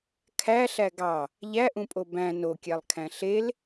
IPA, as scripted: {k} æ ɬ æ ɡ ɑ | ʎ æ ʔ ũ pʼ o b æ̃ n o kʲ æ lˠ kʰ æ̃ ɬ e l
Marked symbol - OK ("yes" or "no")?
no